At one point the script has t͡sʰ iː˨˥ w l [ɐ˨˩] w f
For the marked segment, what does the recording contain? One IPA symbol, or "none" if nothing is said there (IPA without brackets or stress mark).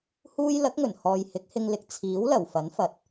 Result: ɐ˨˩